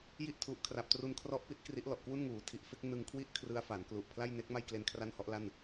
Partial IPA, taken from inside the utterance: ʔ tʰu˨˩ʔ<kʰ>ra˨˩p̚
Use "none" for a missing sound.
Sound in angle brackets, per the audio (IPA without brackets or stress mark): kʰ